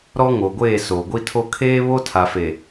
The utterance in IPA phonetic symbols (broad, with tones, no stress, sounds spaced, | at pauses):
ɾ ɔ˦ ŋ o˨ ɡʷ eː˦˨ s o˨ ɡʷ i˦ tʰ o˦ kʰ eː˦ β o˦ tʰ a˨ f e˨